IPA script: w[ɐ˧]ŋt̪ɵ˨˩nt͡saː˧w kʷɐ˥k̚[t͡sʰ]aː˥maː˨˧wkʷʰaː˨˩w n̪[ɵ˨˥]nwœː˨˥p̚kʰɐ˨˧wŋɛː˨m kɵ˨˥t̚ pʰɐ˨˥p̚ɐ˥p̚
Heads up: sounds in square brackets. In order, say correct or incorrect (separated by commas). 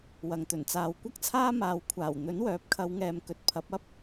incorrect, correct, correct